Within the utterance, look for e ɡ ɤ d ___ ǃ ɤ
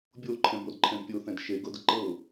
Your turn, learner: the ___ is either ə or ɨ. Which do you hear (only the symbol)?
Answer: ə